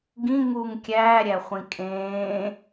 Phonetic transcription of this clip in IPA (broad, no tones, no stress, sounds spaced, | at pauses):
ɡ ĩ ŋ u ŋ kʲ æː ɾʲ æ χʷ ĩ kʼ ẽː